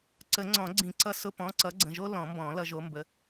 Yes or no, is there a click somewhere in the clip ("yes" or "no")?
yes